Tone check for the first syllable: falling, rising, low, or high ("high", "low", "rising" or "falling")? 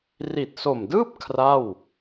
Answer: low